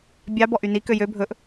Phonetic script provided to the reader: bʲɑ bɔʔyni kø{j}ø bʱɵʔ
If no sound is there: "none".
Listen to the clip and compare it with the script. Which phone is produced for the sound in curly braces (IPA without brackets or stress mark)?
j